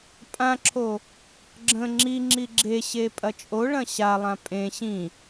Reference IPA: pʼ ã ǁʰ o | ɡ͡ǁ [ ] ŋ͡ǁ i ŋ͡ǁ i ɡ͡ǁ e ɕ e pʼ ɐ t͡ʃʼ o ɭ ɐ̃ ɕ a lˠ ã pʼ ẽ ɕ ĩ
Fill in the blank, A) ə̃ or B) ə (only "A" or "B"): A